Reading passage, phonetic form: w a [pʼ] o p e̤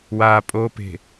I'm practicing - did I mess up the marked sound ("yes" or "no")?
no